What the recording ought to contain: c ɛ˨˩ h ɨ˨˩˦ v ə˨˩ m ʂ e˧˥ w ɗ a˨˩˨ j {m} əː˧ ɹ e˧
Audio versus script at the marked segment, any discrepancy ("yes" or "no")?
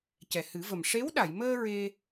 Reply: no